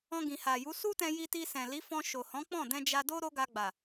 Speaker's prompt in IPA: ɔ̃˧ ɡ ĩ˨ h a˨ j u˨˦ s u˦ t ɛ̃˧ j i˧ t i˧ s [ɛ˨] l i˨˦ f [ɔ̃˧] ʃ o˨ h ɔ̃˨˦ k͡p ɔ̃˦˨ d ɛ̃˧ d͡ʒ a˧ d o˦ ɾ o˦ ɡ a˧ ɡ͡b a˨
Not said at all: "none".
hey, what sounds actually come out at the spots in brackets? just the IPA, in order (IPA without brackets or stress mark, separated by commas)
ɛ̃˨, ɔ̃˧